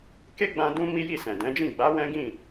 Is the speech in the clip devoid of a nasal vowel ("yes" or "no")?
no